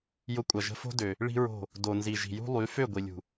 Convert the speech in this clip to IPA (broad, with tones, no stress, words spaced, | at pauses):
jʊ˧kʷʼɐ˨ʒə̤˧fo̤˦ dø˨ | ɭi̤˦ɹo̤˦˨ | do˨nzi˨ʒi̤˨ jṳ˦lˠy˨˦ fø˦˨ ɡʷi˨lʲṳ˨